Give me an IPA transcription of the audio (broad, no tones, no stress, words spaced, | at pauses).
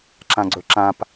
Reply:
ǁãɡ͡ǀɵǁãp